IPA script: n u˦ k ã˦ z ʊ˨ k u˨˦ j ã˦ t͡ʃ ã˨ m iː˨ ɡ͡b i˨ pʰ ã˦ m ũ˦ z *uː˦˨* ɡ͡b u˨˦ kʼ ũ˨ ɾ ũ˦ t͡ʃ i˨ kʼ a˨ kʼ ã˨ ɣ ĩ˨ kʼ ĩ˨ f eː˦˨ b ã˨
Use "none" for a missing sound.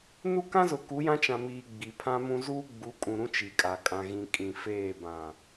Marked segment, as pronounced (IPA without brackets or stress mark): uː˦